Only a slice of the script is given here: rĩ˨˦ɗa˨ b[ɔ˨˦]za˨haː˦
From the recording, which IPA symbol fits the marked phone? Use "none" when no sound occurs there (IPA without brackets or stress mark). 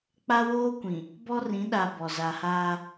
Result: ɔ˨